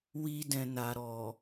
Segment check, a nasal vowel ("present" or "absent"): present